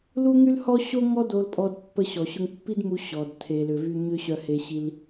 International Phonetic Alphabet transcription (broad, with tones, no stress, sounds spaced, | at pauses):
l u˥ ŋ y˥ l h ɔ˥ ɕ o˥ ŋ ɔ˥ d o˧ l pʼ ɔ˧ d pː ə˧ ɕ ɔ˩ ɕ ʊ˧ ŋ pː i˥ d m u˧ ɕ ɔ˩ d tʰ e˩ l ʏ˩ v y˧ ɲ ʏ˥ ɕ œ˧ h e˧ ɕ i˧ l